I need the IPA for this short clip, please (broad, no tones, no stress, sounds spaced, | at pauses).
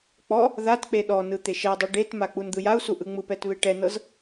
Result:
k͡p ɔ | ð a t k͡p e ɗ ɔ n ɯ t̪ e ʃ ɛ dˤ u ɖ e t m a k͡p u n d̪ ɯ j a u̯ s u ʔ ɯ ŋ͡m ɯ p ɛ t β e ʈ ɛ n ɤ z